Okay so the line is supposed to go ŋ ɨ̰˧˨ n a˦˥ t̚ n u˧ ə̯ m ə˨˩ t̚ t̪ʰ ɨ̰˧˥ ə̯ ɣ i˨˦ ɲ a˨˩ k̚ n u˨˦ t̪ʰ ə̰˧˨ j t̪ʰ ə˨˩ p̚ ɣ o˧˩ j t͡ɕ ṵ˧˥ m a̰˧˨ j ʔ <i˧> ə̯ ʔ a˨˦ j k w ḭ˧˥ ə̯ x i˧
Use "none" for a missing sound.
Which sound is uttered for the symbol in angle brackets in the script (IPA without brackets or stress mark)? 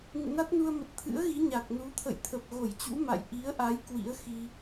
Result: i˨˦